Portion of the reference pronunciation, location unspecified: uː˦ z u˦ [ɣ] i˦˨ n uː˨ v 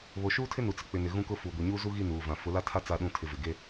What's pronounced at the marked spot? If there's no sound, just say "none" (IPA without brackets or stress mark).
ɣ